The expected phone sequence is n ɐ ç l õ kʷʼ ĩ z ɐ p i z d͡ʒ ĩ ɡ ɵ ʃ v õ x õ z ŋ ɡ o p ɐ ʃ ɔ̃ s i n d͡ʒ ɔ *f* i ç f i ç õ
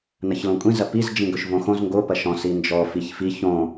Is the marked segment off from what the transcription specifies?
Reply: no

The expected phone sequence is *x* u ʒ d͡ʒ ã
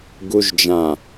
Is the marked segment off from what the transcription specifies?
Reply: yes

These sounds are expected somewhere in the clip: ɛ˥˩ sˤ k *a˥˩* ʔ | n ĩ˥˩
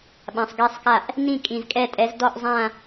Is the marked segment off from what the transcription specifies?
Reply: no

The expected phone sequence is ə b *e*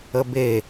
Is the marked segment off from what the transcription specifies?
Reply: no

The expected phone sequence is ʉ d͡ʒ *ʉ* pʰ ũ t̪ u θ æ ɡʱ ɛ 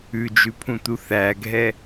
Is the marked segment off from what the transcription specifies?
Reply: no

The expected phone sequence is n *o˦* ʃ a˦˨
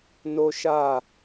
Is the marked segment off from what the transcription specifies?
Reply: no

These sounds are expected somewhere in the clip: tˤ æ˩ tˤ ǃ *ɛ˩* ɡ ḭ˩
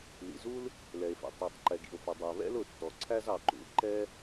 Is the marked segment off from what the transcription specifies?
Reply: no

